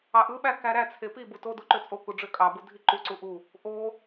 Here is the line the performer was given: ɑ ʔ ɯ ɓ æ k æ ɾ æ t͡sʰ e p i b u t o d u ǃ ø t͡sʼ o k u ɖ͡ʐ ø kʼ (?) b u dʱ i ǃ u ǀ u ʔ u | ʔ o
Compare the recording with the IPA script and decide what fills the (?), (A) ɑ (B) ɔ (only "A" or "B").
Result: A